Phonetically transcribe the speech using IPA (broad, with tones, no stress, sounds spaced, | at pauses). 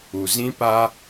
u˨ z ĩ˦ p a˦